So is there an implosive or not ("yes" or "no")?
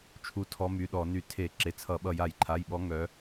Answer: yes